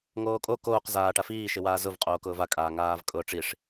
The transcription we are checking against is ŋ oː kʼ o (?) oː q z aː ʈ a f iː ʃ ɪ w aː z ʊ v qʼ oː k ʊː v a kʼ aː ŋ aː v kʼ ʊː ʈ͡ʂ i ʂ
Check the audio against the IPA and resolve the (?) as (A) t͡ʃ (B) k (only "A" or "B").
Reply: B